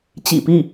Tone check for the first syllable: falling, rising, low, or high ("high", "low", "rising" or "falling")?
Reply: low